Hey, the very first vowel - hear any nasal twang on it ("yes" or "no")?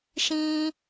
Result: yes